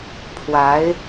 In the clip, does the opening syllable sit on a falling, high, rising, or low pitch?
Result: rising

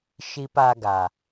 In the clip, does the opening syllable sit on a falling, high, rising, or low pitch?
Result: low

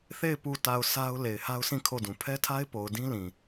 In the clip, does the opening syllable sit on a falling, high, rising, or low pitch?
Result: falling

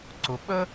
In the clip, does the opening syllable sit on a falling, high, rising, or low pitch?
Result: rising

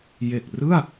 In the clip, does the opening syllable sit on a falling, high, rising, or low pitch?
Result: low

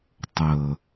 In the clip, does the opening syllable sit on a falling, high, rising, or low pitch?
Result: low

